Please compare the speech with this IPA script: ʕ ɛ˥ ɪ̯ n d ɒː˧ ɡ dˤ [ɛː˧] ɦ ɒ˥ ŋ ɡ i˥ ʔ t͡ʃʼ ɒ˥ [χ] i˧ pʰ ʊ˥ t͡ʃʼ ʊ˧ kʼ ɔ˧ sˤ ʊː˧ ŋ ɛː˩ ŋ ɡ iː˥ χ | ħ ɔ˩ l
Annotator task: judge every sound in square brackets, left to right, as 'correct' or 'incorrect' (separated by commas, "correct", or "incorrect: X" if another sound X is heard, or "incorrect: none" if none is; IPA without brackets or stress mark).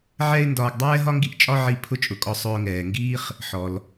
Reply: incorrect: ɛː˥, incorrect: ʕ